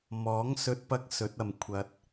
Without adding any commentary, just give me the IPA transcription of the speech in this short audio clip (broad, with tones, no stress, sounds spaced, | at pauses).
m ɔː˨˥ ŋ s ɵ˨˥ t̚ p ɐ˨˥ k̚ s ɵ˨˥ t̚ ɐ˨ m kʷʰ ɐ˧ t̚